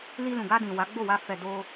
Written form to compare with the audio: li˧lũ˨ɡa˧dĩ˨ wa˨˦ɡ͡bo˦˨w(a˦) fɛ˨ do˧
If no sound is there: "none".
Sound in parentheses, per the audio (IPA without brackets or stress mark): a˧